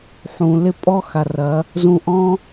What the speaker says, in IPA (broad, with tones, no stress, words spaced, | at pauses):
ħũ˨lɪ˦pʼɔ˦xa˨r ɐ˨˦ | zũ˧ʔɔ̃˦